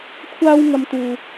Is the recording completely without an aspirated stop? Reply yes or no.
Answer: no